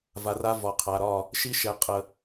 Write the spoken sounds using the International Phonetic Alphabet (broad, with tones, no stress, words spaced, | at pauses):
va˨ra˦ vɒ˨ qʰa˨ɾɒ˦˨ | ʃi˦ʃɛ˨ qʼə˨